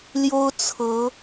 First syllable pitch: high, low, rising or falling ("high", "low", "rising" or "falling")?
high